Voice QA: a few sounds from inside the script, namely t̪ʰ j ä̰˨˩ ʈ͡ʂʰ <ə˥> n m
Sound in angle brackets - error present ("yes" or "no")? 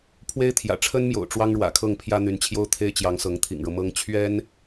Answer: no